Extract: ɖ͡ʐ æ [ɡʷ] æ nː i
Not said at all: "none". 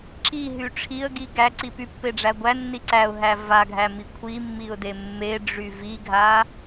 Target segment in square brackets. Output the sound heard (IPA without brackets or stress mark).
ɡʷ